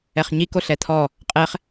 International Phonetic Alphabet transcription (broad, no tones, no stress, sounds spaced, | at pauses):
ɛ χ ɲ i k o ɬ ɛ t̪ʰ ɔ | qʼ ɛ χ